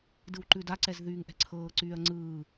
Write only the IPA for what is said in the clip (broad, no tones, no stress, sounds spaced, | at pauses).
d ɯ w ǃ ʉ d a ǀ ɛ z ð yː ŋ ʔ ɛ̤ ǀʰ ɤː ǀ yː ɐ̯ ŋ͡ǀ ɯː